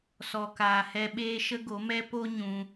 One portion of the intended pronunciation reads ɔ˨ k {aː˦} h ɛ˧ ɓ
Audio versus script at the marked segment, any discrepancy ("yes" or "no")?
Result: yes